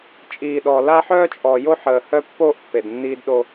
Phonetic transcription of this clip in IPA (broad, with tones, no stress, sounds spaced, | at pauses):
t͡ʃʼ iː˨ ɗ ɔ˨ l a˦ ħ œː˦ t͡ʃʼ ɔ˨ j o˦ ħ əː˨ h œ˦ pː oː˦ ʔ pː e˨ d nː iː˦ d ɗ o˦